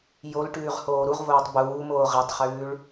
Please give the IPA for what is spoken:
jolʈʉːʁ hoːɾuʁvoːtˤ buːmoː ʁɛtˤχʉːɭ

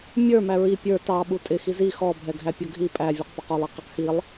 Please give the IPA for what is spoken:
mʲə˞ mæɹi pʲə˞ tɑ ɓutʼɪ xizi xɔ bʱɛɡʱæpʲʌɡʱi pʼæ vʲə˞qpʌqɔlˠ ɪqɪq xilˠ

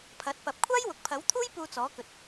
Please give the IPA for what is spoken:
pʰɐ˨˥t̚pɐ˨p̚ kʷʰaː˥jwʊ˨k̚pʰɐ˨˥wt̪ʰuː˥j puː˧t͡sɔː˨˥kɵ˨t̚

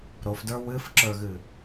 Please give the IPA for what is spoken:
ɾofdə˞ wɨfǁə˞ɣɨ

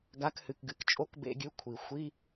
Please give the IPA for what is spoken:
ɡa˨˥khɨ˩kɡɨ˩k t͡ʃʼo˧˥˧kbḛ˧˥˧ɡʲʉ˨˥ kʷʰi˩xʷi˧˥˧

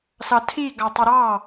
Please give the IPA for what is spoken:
sɑtʰi ɡɑtˤəɾɑ

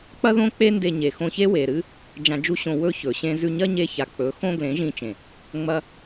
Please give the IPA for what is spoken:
k͡pɐ˦ðõ˦k͡pe˦ nde˧ɲe˨ xõ˧çe˦we˨ɾɨ˦ | d͡ʒã˧d͡ʒu˦ɕõ˧ wɵ˦ çɵ˨ɕẽ˦ zʉ˧ɲɐ˦ɲe˧ ça˨k͡pɵ˨˦ xõ˦ɡlẽ˨˦ʒĩ˧t͡ʃẽ˨ | ŋ͡mɐ˦

